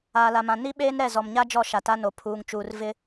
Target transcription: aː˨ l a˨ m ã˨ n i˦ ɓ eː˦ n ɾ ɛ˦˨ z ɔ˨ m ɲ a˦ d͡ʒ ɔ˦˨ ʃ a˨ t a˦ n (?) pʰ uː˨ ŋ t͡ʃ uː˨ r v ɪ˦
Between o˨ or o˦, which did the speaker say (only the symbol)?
o˨